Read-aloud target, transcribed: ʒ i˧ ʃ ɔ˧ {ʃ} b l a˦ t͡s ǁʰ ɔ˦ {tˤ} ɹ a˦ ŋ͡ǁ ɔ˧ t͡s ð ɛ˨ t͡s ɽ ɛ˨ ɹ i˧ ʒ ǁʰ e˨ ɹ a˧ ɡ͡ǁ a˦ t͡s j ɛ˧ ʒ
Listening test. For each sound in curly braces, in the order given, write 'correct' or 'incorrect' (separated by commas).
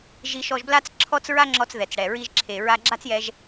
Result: incorrect, incorrect